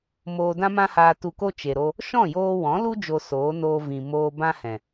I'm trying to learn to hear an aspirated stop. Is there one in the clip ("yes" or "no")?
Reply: no